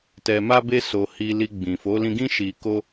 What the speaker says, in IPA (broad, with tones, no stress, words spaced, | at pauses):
tɛ˧ma˦be˦ so˧hi˧li˧ ɡ͡bĩ˨fo˨˦lĩ˧ɡĩ˦ ʃi˧ko˦